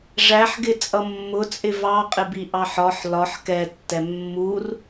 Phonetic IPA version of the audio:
ʐ æ ħ ɡ ɪ t͡sʼ ʌ mː ʊ t͡sʼ ɪ v ɑ qʼ ɪ b i ʔ ɑ ħ ɒ ħ l ɒ ħ k ɛ tː ɛ mː u r

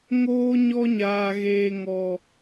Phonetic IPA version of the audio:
ŋ oː˧ ɲ ɔ˧ ɲ aː˨ ɣ eː˨ ŋ ɔ˨

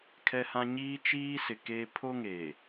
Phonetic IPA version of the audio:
kʰ ɛ˦ h ã˦ ɲ iː˦ t͡ʃ iː˦ s ɪ˨ k eː˦ pʰ o˦ ŋ e˨

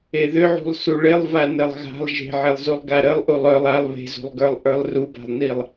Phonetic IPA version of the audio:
e ð ʏ ʕ ṳ lˠ s u ɭ ɪ lˠ v a n ə lˠ ɣ a̤ lˠ ʒ e̤ ʕ e lˠ z u lˠ ɡ a ɾ ə lˠ ʔ u lˠ œ lˠ a lˠ β e̤ z ṳ lˠ ɡ ə˞ lˠ ʔ ə˞ lˠ r u b a̤ lˠ n i lˠ

